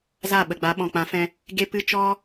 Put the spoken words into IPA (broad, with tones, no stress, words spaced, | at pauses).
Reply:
za˦˨ɓə˨ɡ͡ba˨˦ ɓɔ̃˨k͡pã˨˦fɛ̃˧ | ɡe˦pɨ˦ t͡ʃɔ˦